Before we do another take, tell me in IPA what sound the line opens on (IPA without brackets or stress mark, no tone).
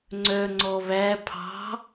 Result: ŋ͡ǀ